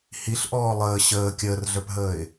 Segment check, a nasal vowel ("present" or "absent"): absent